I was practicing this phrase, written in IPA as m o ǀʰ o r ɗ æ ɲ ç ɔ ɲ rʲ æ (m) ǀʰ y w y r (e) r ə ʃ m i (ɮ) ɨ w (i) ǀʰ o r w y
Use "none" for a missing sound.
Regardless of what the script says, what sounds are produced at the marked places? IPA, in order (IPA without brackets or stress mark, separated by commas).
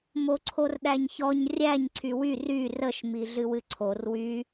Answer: ɲ, y, ɮ, ɨ